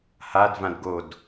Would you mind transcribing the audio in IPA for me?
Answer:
h a d v ã d ɡ o d

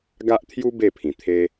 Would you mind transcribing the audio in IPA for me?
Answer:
ɡ a˦ ʔ t̪ʰ j u˦ b e˥˧ pʰ ĩ˨˩ t̪ʰ e˧

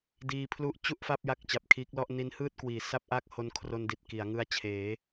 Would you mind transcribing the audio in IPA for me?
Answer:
d iː˧ pʰ l u˦˥ ʔ t͡ɕ u˥˩ ʔ f a˥˩ p̚ j a˦˥ k̚ t͡ɕ a˨˩ p̚ kʰ iː˦˥ k̚ l ɔ˥˩ ʔ n i˦˥ n h ɯː˥˩ t̚ k w iː˩˦ s a˥˩ p̚ ʔ a˥˩ k̚ h o˦˥ n kʰ r o˧ n d i˨˩ t̚ k i˩˦ a̯ ŋ ɯ˦˥ a̯ t͡ɕʰ eː˩˦

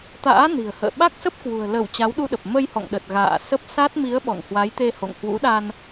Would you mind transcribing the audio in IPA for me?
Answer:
t̪ a̰ː˧˥ n i̤˨˩ ə̯ h ə̰ː˧˨ ɓ a˦˥ k̚ s ə˦˥ p̚ k w ṳ˨˩ ə̯ l ə˧˩ w t͡ɕ a˨˦ w ɗ u˧ ɗ ə˨˩ p̚ m ə˧ j h ɔ̰˧˨ ŋ ɗ ə˨˩ t̚ ɣ a̰ː˧˨ s ə˦˥ p̚ s a˦˥ t̚ m i˨˦ ə̯ ɓ ɔ̰˧˨ ŋ h w a˨˦ j t̪ e˧ h o̰˧˨ ŋ h w ṵ˧˥ ɗ a˧ n

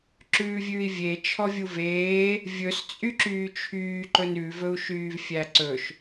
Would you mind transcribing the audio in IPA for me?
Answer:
ǁ ʉː vʲ ʉː i̯ vʲ e t͡ʃʰ ɔ vʲ u v eː | vʲ ɵ s t͡sʼ y ǁ yː t͡ʃʰ yː ǃ ɵ n ʉ v ɵ u̯ ʃ yː v fʲ æ ǀ ɵ ʃ

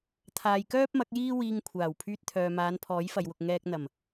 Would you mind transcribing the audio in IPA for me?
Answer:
t̪ʰ aː˨ j k œː˥ p̚ m ɐ˨˥ k̚ j iː˥ w iː˧ ŋ kʷʰ aː˨˩ w pʰ yː˧ t̚ t̪ʰ œː˨ m aː˨˧ n pʰ ɔː˨˥ j f ɐ˨ j w ʊ˨ k̚ ŋ ɛː˧ k̚ n̪ ɐ˨˩ m

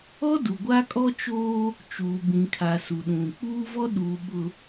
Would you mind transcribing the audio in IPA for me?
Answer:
ɔ˦ d u˨ ɡʷ a˦ kʼ ɔ˦ t͡ʃ oː˦ | t͡ʃ uː˨ b ĩ˨ kʰ a˨ s u˨ ɗ ũ˨ k͡p uː˦ v ɔ˦ ɗ uː˨ ɓ ʊ˨

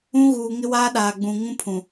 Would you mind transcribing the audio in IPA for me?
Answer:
ũ˦ ɣ uː˨ ŋ ɪ˦ w aː˦ ɗ aː˨ ɡ͡b ũ˨ ŋ ũ˦ pʰ ũ˨

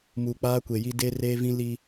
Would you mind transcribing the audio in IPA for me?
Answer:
m uː˨ k͡p aː˦ kʷ e˨ j i˦ d e˦ r eː˦ v ĩ˦ l i˦

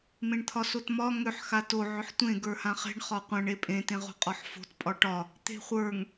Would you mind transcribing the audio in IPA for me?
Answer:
m ẽ ɳ t̪ʰ ɒ s o t m ɒ ŋ ʏ ħ x a t o ʕ ʏ ħ tʷ ẽ ɡ ə˞ h ã χ e̤ ɳ χ ɒ qʷ ã ɳ e pʼ ẽ t ẽ ʁ o̤ qʼ ɒ ħ f o̤ t pʼ ɒ ʈ ɒ | t̪ e̤ χʷ ə˞ ŋ

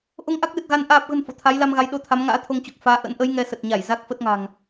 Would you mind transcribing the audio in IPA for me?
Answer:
ʔ o˧ ŋ ʔ a˦˥ k̚ l ɨ˨˩ t̚ ɣ a˧ n ʔ aː˨˩ p̚ ɣ ə̤˨˩ n f o̰˧˨ t̪ʰ a˨˦ j l a˧ m ɣ a˨˦ j ɗ o˨˦ t̪ʰ a˨˦ m ŋ a̰ː˧˥ t̪ʰ o˧ ŋ t͡ɕ o˨˩ k̚ f aː˨˦ ʔ ə̰˧˥ n ʔ ə˨˦ j ŋ ɛ˧ s ə˨˩ t̚ ɲ a˧˩ j z a˦˥ k̚ f ə˦˥ t̚ ŋ a̤˨˩ ŋ

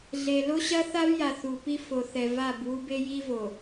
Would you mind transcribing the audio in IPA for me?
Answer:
ɮ e˨ l o˦ ɕ ɐ˦ θ a˦ v j a˨ θ u˨ p i˦ f o˨ θ ɛ˨ v a˦˨ b w u˦ b e˦ j i˦ v o˨

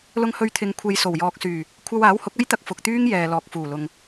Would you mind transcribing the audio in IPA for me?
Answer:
l ʊ˧ ŋ h ɵ˧ ɥ t̪ʰ ɪ˨ ŋ kʷʰ e˧ j s o˨˩ w j ɔː˨ k̚ s yː˨˩ | kʷʰ ɐ˧ w aː˨˥ w h ʊ˨˥ k̚ ɐ˥ j t̪ ɐ˧ k̚ f ʊ˨ k̚ t̪ yː˥ ŋ j ɛː˨ l ɔː˨ k̚ f uː˨˩ l ʊ˨ ŋ

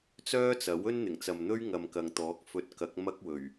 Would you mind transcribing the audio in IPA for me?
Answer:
t͡s œː˥ t͡s ɐ˨˥ w ɵ˥ n n̪ ɪ˨˩ ŋ t͡s ɐ˨ m n̪ ɵ˥ ɥ ŋ ɐ˨ m k ɐ˨ ŋ t̪ ɔː˨˥ k̚ f ɵ˧ t̚ k ɐ˨˥ k̚ m ɐ˥ k̚ w ɵ˨˩ ɥ

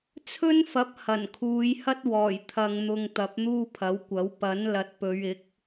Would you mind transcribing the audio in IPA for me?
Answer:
t͡sʰ ɵ˥ n f ɐ˨˥ p̚ h ɐ˨˩ n kʰ uː˨˧ j h ɐ˥ t̚ w ɔː˨˩ j t̪ʰ ɐ˨ ŋ n̪ ʊ˨ ŋ t̪ ɐ˨˥ p̚ n̪ uː˥ pʰ ɐ˨˥ w kʷ ɐ˨˥ w p ɐ˨˥ n l ɐ˨ t̚ p ɵ˨˧ ɥ ɪ˨˥ k̚

